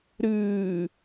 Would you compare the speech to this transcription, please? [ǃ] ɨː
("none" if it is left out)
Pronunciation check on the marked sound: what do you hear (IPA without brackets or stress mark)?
ɾ